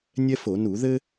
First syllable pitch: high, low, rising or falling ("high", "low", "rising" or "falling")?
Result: high